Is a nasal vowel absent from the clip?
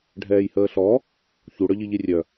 yes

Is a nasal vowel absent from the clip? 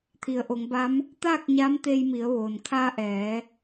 yes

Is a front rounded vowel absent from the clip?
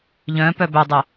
no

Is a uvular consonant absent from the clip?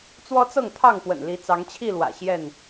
yes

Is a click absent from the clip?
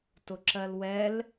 no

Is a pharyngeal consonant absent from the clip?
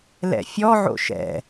no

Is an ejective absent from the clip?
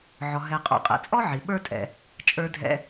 no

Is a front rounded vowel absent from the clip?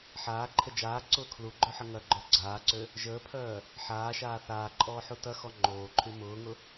no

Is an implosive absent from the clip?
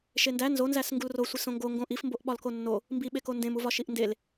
no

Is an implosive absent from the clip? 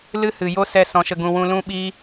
no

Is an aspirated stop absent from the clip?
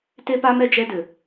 yes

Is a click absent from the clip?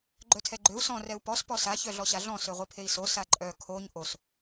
no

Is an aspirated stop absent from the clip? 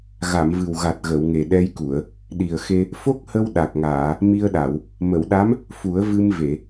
yes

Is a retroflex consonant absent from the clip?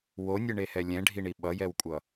no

